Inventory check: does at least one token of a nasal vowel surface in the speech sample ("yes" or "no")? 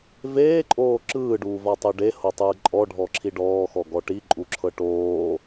no